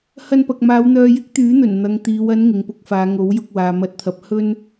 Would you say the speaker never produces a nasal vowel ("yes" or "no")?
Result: yes